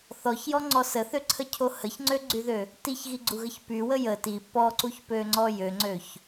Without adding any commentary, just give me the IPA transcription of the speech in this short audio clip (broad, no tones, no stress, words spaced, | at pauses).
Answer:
θɔçjɔŋ͡ǀɔ səθøǀʰəcʰo həçŋ͡ǀøɡ͡ǀyðø | tiçɣiɡ͡ǀuɣəç pywə jə ti pɔǀuçpøŋ͡ǀɔ jøŋ͡ǀøç